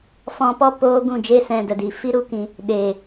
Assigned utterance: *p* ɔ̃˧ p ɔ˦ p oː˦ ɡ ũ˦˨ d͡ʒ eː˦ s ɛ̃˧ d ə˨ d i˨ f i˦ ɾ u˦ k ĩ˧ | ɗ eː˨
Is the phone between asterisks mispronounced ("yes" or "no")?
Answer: yes